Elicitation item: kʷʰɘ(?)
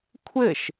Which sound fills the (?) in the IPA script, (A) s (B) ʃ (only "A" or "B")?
B